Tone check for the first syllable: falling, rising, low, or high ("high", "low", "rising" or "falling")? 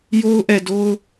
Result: high